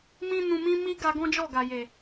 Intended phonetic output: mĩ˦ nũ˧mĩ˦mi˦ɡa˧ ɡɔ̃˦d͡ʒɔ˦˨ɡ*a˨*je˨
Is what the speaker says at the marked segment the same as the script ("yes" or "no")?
yes